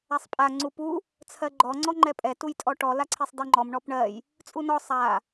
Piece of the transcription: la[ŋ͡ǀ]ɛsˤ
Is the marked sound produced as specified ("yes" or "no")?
no